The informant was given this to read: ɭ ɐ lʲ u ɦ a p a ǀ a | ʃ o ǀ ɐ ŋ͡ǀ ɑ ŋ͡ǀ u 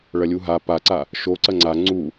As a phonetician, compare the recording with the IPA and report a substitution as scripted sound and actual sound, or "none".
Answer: ɑ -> a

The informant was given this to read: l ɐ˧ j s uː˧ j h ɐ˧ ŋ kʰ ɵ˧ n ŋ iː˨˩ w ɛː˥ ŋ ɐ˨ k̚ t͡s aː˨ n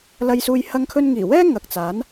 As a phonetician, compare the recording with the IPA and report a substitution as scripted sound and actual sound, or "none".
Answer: aː˨ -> aː˨˥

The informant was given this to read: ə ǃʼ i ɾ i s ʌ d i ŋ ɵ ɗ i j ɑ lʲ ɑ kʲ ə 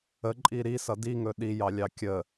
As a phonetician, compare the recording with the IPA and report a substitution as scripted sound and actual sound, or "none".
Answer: none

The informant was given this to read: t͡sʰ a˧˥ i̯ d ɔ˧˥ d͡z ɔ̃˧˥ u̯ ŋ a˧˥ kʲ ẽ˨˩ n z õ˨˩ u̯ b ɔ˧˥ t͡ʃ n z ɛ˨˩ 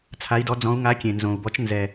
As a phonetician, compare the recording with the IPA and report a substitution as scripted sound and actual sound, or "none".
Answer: none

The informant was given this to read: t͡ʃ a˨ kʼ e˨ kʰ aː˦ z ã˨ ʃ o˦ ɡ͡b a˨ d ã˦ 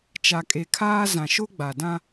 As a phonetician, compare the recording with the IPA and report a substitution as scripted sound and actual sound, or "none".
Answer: none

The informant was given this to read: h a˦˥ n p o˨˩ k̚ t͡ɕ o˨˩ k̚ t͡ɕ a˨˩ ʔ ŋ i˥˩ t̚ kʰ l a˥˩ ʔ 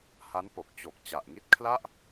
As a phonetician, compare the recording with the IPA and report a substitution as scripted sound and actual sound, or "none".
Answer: none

